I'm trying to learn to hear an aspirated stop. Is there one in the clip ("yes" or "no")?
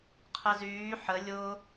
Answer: yes